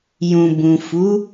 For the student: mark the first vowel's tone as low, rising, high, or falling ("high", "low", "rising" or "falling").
low